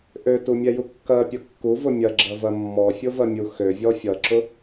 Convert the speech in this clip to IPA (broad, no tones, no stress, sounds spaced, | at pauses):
ʔ ø t u mʲ ɛ j u kː ɐ pʲ ʊ kː u v ʊ mʲ ɐ ɡ͡ǁ ɐ v ɐ mː ɔ fʲ ʊ v ɐ mʲ u x ø vʲ ɔ fʲ ʌ ǁ ʊ